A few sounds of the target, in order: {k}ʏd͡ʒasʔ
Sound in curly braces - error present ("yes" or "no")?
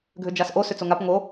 yes